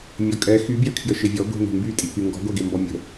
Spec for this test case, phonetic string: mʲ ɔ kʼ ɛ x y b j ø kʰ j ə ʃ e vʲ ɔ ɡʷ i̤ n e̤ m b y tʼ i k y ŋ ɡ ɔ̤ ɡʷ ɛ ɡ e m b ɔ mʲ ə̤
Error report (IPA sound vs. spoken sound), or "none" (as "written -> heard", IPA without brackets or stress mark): none